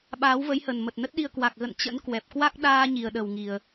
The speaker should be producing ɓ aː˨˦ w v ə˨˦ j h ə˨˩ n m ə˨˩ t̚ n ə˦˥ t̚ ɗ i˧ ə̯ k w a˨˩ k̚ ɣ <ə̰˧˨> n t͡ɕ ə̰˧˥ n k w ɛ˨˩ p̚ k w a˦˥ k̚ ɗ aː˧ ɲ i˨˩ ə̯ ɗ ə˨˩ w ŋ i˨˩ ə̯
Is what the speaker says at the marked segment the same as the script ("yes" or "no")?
yes